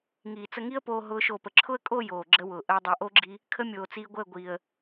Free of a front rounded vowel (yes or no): yes